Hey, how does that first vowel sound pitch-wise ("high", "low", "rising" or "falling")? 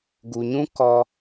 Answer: low